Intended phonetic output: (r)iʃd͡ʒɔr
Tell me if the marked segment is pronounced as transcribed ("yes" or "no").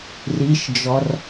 yes